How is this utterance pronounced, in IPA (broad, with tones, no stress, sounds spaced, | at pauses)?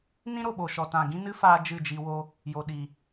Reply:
n ĩ˦ ɾ o˨ ɓ o˨ ʃ ɔ˨ t ã˨ ɡ ĩ˦ n ɨ˦ f aː˦ d͡ʒ ɨ˦˨ d͡ʒ i˧ w o˦ | j o˨ ɗ i˨